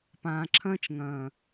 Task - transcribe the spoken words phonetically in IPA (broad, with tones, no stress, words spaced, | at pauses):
pãː˨ǁʰɐ̃ː˦t͡ʃŋɐ̃ː˨